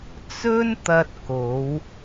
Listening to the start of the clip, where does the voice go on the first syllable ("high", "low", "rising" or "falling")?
high